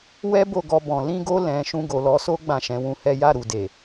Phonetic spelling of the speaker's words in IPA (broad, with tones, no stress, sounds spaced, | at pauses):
w ɛ˦ b o˦˨ ɡ ɔ˧ b ɔ̃˨ l ĩ˧ ɡ o˧ l ɛ̃˨ ʃ ũ˧ ɡ o˨ l ɔ˨˦ s o˦ ɡ͡b ã˦˨ ʃ ɛ̃˨˦ w ũ˧ h ɛ˦ j a˦˨ ɾ u˨ d e˨